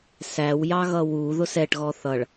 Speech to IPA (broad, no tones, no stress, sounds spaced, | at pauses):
s æ w j ɑ ɣ ʌ w u ð ʊ s ɛ ʈ ɣ ɔ θ ʌ ɭ